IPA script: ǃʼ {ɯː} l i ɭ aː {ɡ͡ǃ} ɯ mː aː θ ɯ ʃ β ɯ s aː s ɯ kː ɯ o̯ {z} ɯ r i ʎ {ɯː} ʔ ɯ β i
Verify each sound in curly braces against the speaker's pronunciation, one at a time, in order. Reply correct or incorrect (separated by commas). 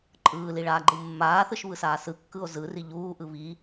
correct, correct, correct, incorrect